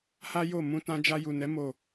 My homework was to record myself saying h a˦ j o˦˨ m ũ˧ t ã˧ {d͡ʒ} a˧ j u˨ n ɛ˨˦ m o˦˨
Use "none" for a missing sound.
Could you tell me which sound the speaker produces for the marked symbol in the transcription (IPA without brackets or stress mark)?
d͡ʒ